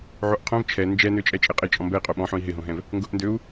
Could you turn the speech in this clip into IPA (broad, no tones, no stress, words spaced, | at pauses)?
ʕoʔqʰõv t͡ʃʰɛ nd͡ʒɛnøt͡ʃʼɛ t͡ʃʼɪqʼɪ t͡ʃʼɔ̃mbɛi̯qʼo ɓɔ̃ħõi̯ ɦɪɦõɦɛ̃v | ŋɡʊʔndøu̯